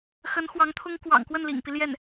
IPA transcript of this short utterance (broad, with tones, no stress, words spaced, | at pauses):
xə˧˥nxwɑ˧˥ŋt̪ʰʊ˥ŋ kwɑ̰˨˩ŋkwə˥˩nlḭ˨˩ŋpi˦ ljɛ˥˩n